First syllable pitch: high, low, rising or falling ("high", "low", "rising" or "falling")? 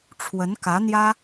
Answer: rising